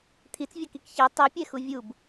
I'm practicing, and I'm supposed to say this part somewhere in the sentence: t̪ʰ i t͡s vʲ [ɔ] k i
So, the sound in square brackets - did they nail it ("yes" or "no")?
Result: yes